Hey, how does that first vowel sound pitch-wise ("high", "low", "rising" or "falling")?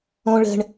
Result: high